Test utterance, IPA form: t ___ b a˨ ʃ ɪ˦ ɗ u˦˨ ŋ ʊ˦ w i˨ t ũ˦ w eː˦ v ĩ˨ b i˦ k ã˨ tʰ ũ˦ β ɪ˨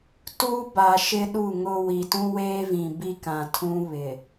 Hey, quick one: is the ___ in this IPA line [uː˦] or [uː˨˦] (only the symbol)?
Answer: uː˦